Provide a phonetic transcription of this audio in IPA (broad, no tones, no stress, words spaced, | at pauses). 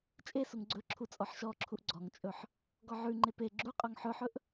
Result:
t͡ʃʼesuŋ ɡ͡ǀɵǁʰu t͡sʼɔħʃɔǁʰuʔ ɡ͡ǀɔŋt͡ʃʼɵħ | ɡɔʕʉŋ͡ǃe pe ɡ͡ǁu qʼɔŋħɵħɵʔ